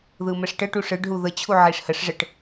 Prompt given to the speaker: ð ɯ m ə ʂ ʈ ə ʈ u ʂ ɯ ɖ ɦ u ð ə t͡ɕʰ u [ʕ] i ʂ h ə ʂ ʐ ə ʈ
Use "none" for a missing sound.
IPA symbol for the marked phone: ʕ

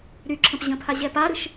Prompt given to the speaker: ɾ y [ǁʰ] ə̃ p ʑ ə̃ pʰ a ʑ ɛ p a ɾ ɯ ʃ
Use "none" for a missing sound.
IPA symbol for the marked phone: ǁʰ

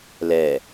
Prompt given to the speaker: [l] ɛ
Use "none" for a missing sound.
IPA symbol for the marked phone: l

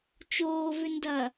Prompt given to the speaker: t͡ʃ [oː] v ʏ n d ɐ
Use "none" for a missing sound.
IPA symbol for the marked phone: oː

